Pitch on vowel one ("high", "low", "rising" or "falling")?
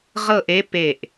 falling